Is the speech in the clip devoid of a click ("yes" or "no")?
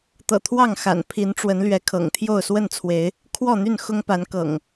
yes